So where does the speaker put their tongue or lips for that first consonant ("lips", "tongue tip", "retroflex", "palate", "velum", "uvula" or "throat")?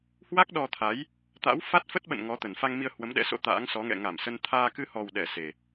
throat